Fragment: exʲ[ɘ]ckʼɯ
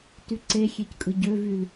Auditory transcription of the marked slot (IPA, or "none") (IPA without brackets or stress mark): e